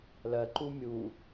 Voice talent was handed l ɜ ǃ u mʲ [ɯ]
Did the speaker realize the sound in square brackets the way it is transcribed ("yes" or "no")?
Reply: no